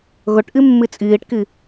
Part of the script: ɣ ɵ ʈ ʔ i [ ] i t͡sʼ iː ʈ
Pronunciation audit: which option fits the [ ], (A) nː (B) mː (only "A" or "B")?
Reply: B